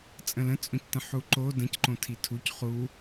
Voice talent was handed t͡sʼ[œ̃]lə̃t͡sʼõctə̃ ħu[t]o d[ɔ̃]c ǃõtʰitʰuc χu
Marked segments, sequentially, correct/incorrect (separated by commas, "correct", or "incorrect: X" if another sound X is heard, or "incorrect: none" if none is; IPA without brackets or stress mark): incorrect: ə̃, incorrect: ǃ, incorrect: ə̃